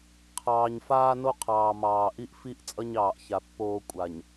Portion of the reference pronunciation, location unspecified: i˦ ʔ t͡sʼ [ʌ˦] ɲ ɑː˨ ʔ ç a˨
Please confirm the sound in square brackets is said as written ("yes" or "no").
yes